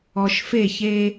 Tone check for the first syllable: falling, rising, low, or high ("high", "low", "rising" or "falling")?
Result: low